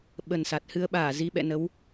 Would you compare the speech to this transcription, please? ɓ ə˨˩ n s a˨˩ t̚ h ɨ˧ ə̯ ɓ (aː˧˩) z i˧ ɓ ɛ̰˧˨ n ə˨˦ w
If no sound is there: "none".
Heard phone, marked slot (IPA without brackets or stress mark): aː˧˩